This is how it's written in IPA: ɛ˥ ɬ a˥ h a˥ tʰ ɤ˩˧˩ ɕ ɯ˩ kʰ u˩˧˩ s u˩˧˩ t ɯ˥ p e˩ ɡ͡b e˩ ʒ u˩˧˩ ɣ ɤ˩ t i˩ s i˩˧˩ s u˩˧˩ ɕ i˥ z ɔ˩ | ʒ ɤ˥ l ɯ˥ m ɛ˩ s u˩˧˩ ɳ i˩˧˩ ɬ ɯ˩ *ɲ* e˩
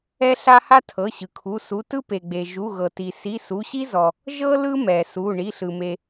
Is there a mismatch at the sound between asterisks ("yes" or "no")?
yes